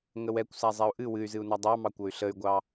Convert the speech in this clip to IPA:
ŋ ə w ɛ kʷ s a zˤ ɛ u̯ ʔ ɨ w ɨ y̯ z ɨ u̯ n ɑ dˤ ɑ m ɑ kʷ ɤ y̯ ɬ ə y̯ ɡʷ ɑ

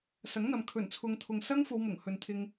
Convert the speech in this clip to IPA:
s ɐ˨˥ ŋ n̪ ɐ˨ m kʰ ɵ˨˩ n t͡sʰ ʊ˨ ŋ t̪ʰ ʊ˨ ŋ s ɐ˥ ŋ f o˧ w m ʊ˨˩ ŋ h ɵ˨ n t̪ʰ ɪ˧ ŋ

